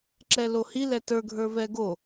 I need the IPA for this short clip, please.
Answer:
ǁ ɛ l o h i l ɛ t ə˞ ɡʱ ə˞ v ɛ ɡ o

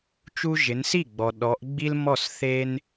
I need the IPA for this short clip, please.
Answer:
t͡ʃ u˦ ʒ ɪ˨˦ n s i˥˩ ɡ͡b ɔ˨ ɗ ɔ˨˦ ʔ ɡ͡b i˦ l m ɔ˥˩ s θ e˦ n

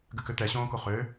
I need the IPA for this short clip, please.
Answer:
ɡ ɘ k ʏ t̪ ɛ ɕ õː k o χ ø

